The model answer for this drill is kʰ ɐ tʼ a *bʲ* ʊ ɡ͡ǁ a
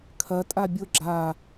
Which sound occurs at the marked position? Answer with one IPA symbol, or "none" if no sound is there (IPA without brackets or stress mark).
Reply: bʲ